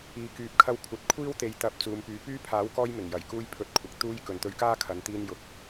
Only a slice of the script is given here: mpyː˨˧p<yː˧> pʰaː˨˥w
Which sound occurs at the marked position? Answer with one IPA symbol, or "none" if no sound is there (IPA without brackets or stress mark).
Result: yː˥